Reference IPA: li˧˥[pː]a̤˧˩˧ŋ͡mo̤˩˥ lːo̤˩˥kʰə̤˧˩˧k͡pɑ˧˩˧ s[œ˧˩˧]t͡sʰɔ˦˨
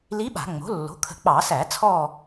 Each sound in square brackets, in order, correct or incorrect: incorrect, incorrect

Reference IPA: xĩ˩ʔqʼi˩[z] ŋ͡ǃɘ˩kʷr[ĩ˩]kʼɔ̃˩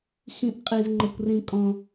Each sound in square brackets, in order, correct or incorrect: correct, correct

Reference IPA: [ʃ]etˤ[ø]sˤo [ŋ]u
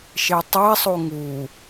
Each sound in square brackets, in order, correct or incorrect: correct, incorrect, correct

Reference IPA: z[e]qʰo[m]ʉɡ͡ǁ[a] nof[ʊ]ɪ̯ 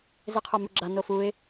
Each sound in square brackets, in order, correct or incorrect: correct, correct, correct, incorrect

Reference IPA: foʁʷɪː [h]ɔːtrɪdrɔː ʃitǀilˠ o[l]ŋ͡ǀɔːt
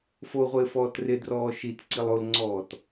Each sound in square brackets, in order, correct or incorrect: incorrect, correct

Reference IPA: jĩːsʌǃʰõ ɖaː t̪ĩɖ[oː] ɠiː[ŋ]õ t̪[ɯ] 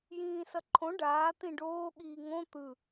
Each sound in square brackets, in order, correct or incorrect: correct, correct, correct

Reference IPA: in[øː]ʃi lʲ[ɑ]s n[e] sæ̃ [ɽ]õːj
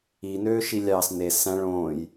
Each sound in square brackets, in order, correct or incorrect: correct, correct, correct, incorrect

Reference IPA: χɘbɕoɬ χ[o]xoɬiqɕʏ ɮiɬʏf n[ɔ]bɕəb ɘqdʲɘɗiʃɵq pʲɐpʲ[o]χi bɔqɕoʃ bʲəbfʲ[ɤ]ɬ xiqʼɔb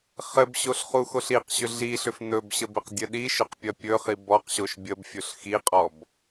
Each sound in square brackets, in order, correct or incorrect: incorrect, incorrect, incorrect, incorrect

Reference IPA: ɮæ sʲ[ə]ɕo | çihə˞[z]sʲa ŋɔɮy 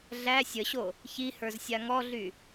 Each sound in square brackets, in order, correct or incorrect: correct, correct

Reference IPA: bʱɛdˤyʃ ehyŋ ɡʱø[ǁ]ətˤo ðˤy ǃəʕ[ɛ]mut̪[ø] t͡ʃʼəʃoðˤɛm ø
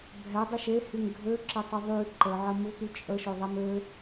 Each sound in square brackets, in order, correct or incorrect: correct, incorrect, incorrect

